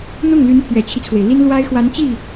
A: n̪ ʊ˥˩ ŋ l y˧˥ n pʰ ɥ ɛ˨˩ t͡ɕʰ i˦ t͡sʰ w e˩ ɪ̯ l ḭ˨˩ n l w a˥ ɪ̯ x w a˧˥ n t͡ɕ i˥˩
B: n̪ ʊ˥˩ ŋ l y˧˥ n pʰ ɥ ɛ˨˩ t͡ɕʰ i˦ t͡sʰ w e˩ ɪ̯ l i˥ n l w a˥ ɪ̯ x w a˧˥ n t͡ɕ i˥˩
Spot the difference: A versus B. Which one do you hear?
B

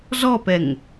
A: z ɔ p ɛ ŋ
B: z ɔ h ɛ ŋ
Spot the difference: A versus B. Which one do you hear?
A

